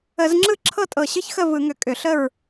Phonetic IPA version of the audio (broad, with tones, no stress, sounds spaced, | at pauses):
ə˧˩˧ z ŋ͡ǁ ɯ˥˨ ǁʰ ɤ˥˨ tʼ ɤ˧˩ ɕ ɯ˥˨ ç x ə˥˨ v ɯ˧˩˧ ŋ ʏ˧˩ kʼ ʏ˧˩˧ ɬ ə˥˨ ɹ